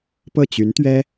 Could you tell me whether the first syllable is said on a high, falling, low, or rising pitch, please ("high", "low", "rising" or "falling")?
falling